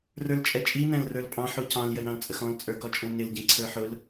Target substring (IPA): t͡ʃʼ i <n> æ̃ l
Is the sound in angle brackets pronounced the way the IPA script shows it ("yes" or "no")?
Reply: yes